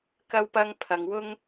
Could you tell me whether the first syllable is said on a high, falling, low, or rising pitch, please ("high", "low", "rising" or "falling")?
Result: high